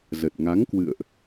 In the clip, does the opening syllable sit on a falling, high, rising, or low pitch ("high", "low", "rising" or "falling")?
low